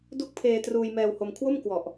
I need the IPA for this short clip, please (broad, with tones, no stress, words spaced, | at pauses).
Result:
du˦˥k̚pʰeː˧ truː˧jmɛː˧who˧m kʰwo˥˩mkwɔ˨˩ʔ